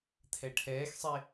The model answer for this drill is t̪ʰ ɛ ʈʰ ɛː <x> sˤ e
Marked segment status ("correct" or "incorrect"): correct